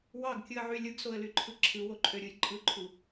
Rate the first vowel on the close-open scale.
open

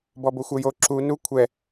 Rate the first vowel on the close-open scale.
mid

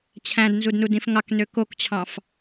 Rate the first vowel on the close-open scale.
open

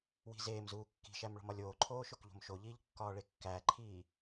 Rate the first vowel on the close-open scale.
close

